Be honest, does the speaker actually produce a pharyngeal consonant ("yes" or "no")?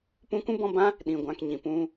no